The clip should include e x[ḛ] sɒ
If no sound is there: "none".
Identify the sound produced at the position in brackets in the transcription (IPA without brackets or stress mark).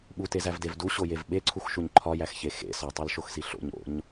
ḛ